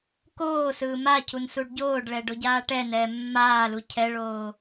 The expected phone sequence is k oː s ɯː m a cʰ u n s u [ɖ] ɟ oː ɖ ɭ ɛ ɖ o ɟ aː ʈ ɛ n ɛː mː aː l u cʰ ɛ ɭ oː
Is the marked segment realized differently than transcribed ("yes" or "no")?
no